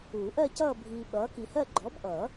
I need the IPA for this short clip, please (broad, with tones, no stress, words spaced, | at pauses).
uː˨˩˦ʔɜ˥˧cʌː˥˧ bʱiː˨ɓʌː˨˥ ki˨hɜ˥˧ ɡ͡ǃɔ˨˥bʔʌː˨˩˦